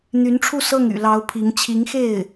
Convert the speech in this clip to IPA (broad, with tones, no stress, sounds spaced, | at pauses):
n̪ y˧˥ n ʈ͡ʂʰ u˥˧ s ɤ˥˩ ŋ y̰˨˩ l ɑ˧˥ ʊ̯ pʰ i˧˥ ŋ t͡ɕʰ i˧˥ ŋ x e˥˩ ɪ̯